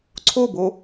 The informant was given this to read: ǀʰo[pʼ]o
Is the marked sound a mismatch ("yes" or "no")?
yes